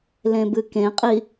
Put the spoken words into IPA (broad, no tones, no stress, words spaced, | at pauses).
lẽbɨkẽqʼi